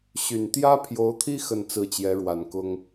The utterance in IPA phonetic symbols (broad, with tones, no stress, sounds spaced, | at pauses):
ɕ y˨˩ n t̪ j ä˥ pʰ j o˧˥ ʊ̯ t̪ʰ i˥ x ə˥˧ n t͡s ɹ̩˥˩ t͡ɕ j ɛ˧˥ ɻ w a˨˩ n k ʊ˥ ŋ